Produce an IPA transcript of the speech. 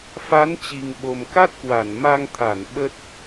fa˨˦n t͡ɕi˨˩ŋɓo˨˩m ka˦˥t̚kwa˧˩n ma˧ŋt̪ʰa˧˩n ɓə˦˥t̚

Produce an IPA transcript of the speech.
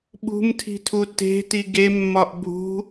ɓṳmtʰi̤tʰu te̤ti ɡemːɒʔ bʱṳ

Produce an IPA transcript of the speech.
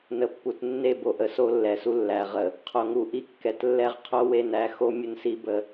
nə˨pːu˨tnːe˦˨bo˨ ʔə˨so˦lːɛ˨su˦ lːæ˨ ʁə˨ | qʰo˨ŋu˨ʔi˦kːɛ˨t lːɛ˦ʁqʰo˦we˦˨n æ˨˦ xo˦ mʲə˦nsi˦bə˦˨

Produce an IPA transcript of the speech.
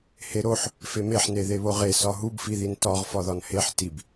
heɾoħ | femeħne ðeβoʁe sɒɦubfiðin tɒʁ fɒðɒnheħ tib

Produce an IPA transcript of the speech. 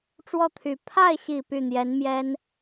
ʈ͡ʂwɔ˥˩t̪ʰy˨˩ pʰa˥˩ɪ̯ɕi˨˩ py˥˩n̪jɛ˧˥nmjɛ˥n

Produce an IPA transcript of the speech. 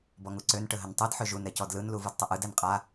bɔŋuǀøn ʈəɦəntˤɯd ħøʒun ɾɛcɔdlɯn luvɯdtˤəʔɯd ɛnqʼa

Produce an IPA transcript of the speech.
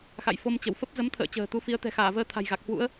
xa̰˧˨j fo˧mt͡ɕə˧˩w fə˦˥p̚ zə˨˦mt̪ʰə̰ː˧˨t͡ɕə̤ː˨˩ t̪u˨˦fi˨˦ə̯ t̪ɛ̤˨˩xaː˧˩vəː˧ t̪ʰa̤˨˩jɣa˨˩k̚hwṵ˧˥ə̯

